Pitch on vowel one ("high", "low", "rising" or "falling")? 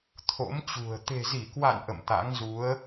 rising